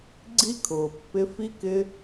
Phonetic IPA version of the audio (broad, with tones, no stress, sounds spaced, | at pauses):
ɡ͡ǀ i˥ kʰ ʊː˩ pː ɪ˦ f i˥ k ɪ˦